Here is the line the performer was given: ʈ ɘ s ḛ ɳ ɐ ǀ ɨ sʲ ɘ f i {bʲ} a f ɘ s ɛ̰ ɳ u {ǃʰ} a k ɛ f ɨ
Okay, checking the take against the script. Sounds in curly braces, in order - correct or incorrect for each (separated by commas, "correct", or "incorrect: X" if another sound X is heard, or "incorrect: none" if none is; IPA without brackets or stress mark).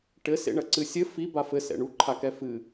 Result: incorrect: b, correct